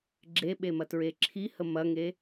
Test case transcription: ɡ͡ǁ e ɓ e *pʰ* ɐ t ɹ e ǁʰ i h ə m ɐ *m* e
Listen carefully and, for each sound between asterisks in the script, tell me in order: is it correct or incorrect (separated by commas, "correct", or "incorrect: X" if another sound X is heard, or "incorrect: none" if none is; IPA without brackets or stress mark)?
incorrect: m, incorrect: ŋ